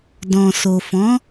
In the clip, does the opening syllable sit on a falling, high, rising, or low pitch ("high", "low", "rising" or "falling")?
low